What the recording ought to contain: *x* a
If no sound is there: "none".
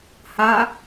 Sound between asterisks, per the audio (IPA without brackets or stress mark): h